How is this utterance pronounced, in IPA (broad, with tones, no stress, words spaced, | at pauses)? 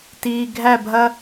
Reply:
tiː˨ɡʱæ˦˨bʱɐ˦